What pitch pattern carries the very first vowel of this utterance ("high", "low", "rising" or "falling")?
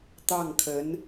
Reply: falling